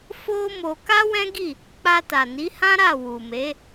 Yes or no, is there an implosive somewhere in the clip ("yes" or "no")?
no